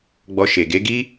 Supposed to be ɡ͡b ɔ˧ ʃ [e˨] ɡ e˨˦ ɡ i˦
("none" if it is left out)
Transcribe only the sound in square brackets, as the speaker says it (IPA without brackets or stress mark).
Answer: e˨